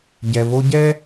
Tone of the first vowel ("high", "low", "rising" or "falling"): low